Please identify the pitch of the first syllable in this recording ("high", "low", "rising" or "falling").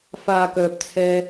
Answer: low